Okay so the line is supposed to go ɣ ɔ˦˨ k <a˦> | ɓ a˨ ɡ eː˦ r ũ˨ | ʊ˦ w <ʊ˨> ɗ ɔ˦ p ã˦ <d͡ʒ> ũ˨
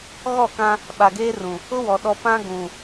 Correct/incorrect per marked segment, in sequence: incorrect, incorrect, incorrect

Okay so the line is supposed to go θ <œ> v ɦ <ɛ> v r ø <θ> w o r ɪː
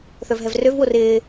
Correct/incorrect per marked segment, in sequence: correct, correct, incorrect

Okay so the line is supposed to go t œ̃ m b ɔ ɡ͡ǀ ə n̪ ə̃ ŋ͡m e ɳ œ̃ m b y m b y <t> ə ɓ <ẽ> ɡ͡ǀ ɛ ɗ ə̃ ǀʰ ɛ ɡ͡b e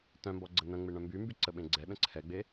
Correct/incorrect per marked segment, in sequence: incorrect, correct

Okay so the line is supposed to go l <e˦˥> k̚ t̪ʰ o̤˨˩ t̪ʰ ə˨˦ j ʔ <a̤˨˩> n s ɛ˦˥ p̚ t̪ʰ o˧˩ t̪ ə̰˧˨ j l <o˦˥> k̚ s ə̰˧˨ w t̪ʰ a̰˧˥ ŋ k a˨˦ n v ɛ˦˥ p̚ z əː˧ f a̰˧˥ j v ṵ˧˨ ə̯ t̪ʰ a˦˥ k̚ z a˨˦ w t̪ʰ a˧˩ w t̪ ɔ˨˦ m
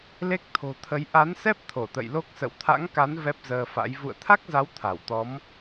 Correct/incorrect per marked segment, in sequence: correct, incorrect, correct

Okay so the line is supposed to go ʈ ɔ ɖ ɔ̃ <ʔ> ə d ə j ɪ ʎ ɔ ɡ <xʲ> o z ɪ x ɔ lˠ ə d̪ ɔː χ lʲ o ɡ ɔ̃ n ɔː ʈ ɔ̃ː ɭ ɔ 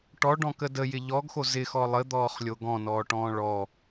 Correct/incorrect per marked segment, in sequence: incorrect, incorrect

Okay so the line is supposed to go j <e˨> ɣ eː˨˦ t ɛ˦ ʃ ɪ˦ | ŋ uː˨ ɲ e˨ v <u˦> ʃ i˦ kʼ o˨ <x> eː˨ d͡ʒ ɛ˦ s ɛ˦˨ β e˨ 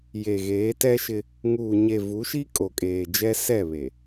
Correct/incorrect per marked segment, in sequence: correct, incorrect, incorrect

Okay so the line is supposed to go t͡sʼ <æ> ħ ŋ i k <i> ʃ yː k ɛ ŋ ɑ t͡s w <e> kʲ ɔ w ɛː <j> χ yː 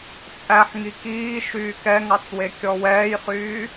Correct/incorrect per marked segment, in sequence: correct, incorrect, correct, correct

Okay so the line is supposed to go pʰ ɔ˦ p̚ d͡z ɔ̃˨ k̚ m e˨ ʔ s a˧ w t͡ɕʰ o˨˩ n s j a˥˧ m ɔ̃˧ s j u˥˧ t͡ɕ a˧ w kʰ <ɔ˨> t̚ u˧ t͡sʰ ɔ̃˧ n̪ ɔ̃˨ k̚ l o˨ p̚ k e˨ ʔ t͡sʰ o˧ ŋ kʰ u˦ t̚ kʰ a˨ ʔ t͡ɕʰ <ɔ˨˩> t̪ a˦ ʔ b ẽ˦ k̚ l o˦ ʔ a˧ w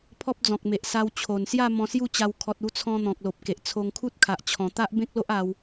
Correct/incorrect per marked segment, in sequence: correct, incorrect

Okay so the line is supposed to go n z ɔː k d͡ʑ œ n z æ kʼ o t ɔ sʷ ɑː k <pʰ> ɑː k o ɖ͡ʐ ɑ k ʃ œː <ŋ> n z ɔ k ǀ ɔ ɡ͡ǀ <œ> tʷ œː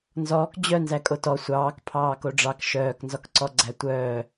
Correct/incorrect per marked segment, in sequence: correct, incorrect, incorrect

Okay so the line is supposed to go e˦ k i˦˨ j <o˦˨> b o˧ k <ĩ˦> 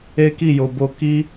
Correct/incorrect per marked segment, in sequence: incorrect, incorrect

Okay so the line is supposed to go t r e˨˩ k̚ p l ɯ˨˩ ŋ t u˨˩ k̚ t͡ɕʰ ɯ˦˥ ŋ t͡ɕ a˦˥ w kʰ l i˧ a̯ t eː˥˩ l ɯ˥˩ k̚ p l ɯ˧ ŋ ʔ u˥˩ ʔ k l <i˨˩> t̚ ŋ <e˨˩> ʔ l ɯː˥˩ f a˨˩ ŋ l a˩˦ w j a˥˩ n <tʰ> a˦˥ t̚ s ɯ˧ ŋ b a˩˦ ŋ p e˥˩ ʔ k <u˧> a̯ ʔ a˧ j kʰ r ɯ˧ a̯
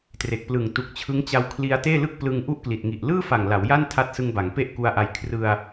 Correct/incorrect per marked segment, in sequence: correct, incorrect, correct, correct

